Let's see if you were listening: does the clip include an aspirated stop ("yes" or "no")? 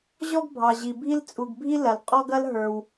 no